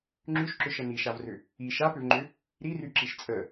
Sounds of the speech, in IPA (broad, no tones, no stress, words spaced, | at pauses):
ŋ͡ǁyʃǁʏʃə niʃavrʏ | i ʃapʏvŋ͡ǃʏ | ɾiryǁiʃ t͡sʼə